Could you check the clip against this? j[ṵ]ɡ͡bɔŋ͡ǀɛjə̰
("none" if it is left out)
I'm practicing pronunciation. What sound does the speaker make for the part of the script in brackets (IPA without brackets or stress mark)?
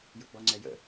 ṵ